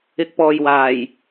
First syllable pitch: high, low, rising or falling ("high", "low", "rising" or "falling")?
rising